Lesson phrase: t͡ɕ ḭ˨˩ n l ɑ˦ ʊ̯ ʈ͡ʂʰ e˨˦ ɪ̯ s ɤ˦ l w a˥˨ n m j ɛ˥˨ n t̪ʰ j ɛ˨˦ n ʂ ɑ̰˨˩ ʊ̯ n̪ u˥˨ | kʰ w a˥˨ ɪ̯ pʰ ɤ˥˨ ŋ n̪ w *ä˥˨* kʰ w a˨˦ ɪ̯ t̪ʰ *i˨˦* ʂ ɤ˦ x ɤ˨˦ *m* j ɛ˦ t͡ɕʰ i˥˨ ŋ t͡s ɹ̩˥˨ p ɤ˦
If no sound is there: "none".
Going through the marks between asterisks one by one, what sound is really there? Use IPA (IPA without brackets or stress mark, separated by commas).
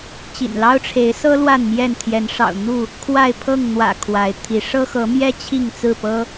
ä̰˨˩, i˨˦, m